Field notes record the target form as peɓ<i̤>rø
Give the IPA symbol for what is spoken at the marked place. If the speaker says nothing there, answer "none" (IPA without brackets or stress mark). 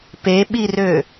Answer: i